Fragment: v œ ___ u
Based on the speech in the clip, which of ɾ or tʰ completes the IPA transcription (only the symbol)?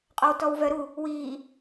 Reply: ɾ